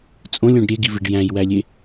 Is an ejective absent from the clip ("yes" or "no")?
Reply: no